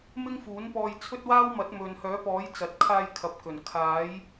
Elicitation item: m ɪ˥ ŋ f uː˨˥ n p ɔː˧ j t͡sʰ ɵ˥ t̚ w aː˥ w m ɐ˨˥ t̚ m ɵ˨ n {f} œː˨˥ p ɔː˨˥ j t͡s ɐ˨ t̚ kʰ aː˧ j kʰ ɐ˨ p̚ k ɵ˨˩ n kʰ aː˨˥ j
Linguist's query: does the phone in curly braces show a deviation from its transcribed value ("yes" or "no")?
yes